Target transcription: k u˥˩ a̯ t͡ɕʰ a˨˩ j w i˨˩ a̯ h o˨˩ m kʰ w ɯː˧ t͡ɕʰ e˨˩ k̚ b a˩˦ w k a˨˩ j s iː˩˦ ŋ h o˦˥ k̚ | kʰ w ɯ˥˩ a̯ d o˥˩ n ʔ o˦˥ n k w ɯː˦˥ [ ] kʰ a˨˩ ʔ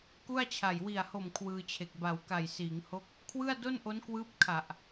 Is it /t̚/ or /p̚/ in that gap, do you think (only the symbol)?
p̚